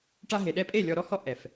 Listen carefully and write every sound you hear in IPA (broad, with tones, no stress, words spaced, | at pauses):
ʈa˧ɦe˨ɗɛ˧pʼe˦˨ lʲɔ˧ɾɔ˦hɔ˦ ʔɛ˨f